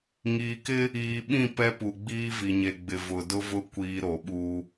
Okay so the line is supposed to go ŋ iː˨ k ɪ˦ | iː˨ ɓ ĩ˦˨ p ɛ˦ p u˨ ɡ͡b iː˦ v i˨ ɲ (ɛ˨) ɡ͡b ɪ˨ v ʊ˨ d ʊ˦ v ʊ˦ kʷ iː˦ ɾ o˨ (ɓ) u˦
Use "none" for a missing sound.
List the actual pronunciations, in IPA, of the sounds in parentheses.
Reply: e˨, ɓ

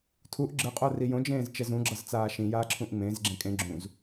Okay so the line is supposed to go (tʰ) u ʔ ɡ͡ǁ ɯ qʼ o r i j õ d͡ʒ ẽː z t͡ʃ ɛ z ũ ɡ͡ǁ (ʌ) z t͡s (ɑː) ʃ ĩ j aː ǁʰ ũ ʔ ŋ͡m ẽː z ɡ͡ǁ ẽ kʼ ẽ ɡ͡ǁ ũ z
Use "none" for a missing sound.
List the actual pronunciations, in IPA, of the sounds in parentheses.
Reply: tʰ, ʌ, aː

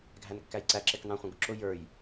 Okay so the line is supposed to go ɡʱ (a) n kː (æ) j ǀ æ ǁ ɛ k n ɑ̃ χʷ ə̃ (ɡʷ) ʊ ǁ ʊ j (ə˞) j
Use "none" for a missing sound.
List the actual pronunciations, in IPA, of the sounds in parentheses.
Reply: æ, æ, ɡ, ə˞

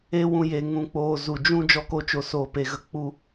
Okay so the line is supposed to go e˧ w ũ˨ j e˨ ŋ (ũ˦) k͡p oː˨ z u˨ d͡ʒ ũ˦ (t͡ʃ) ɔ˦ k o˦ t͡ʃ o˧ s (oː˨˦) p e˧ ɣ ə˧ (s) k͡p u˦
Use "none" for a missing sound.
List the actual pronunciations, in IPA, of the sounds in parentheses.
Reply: ũ˨, d͡ʒ, oː˧, none

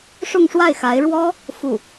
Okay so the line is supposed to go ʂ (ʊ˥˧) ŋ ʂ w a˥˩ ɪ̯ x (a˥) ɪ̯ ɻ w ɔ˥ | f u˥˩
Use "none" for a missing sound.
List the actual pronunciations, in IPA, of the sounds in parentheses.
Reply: ʊ˥˧, a˧˥

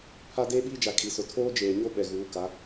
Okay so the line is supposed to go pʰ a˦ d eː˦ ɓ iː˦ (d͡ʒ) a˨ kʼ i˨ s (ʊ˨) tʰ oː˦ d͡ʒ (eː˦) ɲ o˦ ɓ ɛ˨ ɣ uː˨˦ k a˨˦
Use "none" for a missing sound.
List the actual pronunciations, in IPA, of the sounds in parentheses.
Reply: d͡ʒ, ʊ˨, eː˨

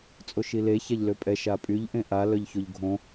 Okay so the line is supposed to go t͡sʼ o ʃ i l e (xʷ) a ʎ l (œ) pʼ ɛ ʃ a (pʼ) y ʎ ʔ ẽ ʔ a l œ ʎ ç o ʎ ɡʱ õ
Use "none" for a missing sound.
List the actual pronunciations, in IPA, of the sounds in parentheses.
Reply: ç, ø, pʼ

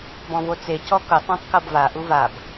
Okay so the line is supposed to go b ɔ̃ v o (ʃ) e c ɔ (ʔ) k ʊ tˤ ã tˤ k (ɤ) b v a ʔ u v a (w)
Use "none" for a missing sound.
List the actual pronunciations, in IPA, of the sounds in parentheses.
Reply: t͡s, none, ɤ, b

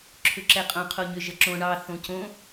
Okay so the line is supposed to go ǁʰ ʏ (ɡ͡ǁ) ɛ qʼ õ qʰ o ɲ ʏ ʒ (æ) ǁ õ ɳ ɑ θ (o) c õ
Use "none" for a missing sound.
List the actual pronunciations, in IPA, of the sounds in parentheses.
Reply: ǁ, ə, õ

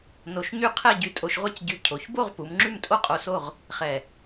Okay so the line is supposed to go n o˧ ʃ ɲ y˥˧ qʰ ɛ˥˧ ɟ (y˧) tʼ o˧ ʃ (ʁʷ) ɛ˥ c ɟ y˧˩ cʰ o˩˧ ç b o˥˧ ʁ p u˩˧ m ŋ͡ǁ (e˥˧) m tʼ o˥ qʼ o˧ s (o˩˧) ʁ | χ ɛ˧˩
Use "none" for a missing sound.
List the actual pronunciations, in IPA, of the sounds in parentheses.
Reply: y˧, ʁʷ, y˥˧, o˥˧

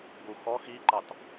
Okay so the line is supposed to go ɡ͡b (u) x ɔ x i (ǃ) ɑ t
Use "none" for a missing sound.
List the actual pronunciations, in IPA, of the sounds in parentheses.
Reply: u, ǃ

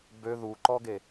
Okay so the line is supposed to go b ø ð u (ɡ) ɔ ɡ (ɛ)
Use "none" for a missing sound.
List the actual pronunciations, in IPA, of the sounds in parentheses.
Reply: ǃ, e

